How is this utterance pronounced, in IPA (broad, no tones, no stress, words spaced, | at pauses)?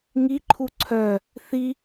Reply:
ŋiǃʰu ǀʰœ | θi